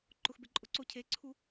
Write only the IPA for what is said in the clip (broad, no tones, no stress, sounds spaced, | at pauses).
ǃ ʊ x b e ǃʼ ʊ ǀ o cʰ e ǀʰ u